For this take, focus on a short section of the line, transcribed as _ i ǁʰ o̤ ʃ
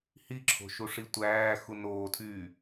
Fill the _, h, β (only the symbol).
h